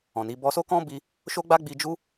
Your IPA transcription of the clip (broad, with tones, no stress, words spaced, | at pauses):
ɔ̃˨ni˨˦ bɔ˧so˦kɔ̃˦bi˧ | ʃo˦ɡ͡ba˦ɡ͡bi˧d͡ʒu˦